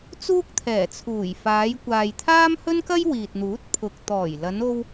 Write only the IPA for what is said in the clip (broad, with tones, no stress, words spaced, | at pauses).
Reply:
t͡suː˥k̚t̪ʰɛː˨˩t͡sʰuː˨˩j faː˨˧jkʷaː˨j t̪ʰaː˥mhɵ˥nkɐ˥j wiː˨t̚n̪uː˨˥t̚ pʰʊ˨k̚ t̪ɔː˨˩jlɐ˨˧no˧w